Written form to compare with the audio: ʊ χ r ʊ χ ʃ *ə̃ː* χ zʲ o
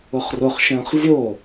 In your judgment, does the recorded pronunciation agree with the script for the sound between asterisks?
yes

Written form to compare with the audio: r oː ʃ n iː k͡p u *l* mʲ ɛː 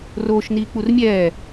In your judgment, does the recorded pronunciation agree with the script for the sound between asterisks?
no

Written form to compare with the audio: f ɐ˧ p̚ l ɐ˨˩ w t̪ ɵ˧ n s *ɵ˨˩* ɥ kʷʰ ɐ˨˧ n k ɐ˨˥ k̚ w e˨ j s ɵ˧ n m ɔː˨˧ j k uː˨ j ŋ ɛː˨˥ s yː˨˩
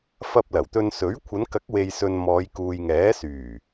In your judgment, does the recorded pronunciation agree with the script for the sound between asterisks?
no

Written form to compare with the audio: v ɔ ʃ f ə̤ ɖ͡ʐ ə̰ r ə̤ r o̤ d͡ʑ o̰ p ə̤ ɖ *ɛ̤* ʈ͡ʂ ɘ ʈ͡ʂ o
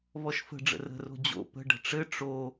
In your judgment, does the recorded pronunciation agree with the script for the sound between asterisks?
no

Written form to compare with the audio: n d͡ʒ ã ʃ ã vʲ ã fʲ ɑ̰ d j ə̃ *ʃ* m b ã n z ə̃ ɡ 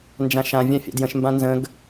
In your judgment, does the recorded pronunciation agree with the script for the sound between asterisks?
yes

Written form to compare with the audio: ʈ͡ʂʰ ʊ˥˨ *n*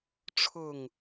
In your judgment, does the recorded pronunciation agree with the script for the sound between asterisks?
no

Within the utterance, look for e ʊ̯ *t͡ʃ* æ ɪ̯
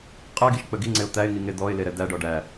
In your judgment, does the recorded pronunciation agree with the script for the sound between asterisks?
no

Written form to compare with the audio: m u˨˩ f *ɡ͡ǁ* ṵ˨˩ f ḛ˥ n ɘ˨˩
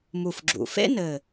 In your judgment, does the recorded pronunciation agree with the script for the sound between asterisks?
yes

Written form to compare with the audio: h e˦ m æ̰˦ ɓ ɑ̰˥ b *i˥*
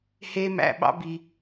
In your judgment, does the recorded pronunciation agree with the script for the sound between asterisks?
no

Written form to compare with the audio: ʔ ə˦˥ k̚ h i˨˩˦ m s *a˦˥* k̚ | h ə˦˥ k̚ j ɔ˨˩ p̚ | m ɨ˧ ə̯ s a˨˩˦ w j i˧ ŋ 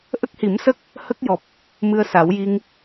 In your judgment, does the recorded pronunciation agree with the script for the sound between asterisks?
no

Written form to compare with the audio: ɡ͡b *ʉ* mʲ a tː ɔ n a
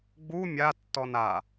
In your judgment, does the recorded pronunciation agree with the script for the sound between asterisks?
no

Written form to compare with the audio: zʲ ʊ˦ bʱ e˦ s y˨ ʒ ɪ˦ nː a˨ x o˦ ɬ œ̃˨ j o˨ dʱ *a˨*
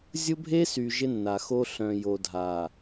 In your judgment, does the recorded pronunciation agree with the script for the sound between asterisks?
yes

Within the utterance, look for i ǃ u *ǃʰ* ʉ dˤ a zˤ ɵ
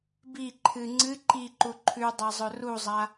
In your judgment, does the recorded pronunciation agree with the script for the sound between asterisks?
yes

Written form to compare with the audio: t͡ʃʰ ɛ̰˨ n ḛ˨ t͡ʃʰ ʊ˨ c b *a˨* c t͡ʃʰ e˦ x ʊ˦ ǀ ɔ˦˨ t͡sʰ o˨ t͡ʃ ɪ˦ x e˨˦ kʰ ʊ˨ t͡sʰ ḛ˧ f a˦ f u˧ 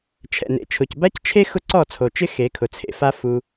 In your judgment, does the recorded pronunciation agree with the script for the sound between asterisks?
no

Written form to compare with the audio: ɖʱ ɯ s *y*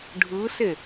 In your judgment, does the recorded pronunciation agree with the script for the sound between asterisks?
no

